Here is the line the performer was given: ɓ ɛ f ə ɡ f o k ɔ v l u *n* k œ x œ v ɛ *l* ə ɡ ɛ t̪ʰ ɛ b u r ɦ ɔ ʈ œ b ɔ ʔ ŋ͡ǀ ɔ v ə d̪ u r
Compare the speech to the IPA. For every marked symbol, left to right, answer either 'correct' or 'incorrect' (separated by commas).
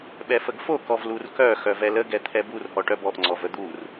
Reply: incorrect, correct